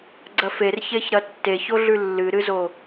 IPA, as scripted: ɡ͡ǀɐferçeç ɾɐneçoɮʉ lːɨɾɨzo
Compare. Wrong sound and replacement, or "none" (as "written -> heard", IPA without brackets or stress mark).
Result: n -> tː